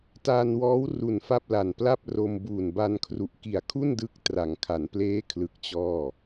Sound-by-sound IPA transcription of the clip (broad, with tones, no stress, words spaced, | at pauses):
taː˧nwɔː˦˥w ru˨˩nfa˥˩p̚ la˨˩npla˥˩p̚ro˧m buː˨˩nba˧n kʰru˨˩ʔki˨˩a̯kʰu˥˩ndɯ˦˥k̚ tra˩˦ŋkʰa˩˦npleː˦˥kʰlɯ˨˩k̚ t͡ɕɔː˥˩